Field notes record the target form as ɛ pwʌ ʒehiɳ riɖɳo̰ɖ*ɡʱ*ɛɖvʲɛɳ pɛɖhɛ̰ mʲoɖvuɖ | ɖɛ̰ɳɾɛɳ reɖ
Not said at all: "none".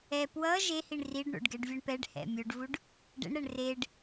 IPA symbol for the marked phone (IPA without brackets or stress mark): ɡ